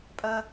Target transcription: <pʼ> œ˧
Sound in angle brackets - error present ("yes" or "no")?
no